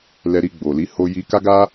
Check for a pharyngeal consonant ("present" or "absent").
absent